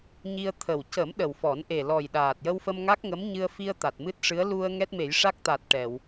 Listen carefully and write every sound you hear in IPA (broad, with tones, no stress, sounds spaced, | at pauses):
ɲ i˧ ə̯ t̪ʰ ə˨˩ w c ə˨˩˦ m ɗ ə˨˩ w f ɔ˨˩˦ n ʔ e˨˩ l ɔ˨˩ j ɗ aː˨˩ t̚ j ə˧ w f ə˧ m ŋ a˦˥ k̚ ŋ ə˧˥ m ɲ ɨ˧ ə̯ f i˧ ə̯ t̪ a˨˩ t̚ m ɨ˦˥ t̚ ʂ ɨ˧˥ ə̯ l u˧ ə̯ ŋ ɛ˦˥ t̚ m e˨˩˦ j ʂ a˦˥ k̚ t̪ a˨˩ t̚ ʈ ɛ˨˩˨ w